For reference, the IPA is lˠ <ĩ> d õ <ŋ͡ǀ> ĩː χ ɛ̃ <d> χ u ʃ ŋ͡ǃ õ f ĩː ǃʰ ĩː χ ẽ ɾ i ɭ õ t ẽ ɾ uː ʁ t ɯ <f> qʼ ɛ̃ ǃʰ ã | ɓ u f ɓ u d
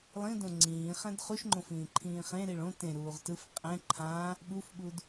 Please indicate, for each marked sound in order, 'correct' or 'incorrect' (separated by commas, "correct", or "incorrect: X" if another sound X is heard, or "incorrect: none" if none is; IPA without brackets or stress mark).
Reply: correct, correct, correct, correct